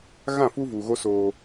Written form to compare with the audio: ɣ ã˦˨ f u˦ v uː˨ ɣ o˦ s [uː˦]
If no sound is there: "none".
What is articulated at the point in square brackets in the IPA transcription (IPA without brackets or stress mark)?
oː˦